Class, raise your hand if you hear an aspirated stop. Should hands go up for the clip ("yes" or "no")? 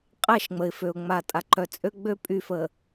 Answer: no